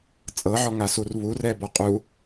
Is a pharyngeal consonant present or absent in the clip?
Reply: present